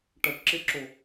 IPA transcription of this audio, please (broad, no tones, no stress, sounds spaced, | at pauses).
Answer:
ʈ ɐ ʈ ǁ e ǁ o